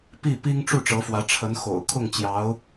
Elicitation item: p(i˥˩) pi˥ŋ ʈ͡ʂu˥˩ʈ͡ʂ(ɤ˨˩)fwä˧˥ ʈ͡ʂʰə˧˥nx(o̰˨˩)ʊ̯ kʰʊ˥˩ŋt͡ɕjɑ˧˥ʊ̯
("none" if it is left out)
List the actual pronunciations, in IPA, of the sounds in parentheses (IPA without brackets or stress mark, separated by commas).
i˥˩, ɤ˧˥, o̰˨˩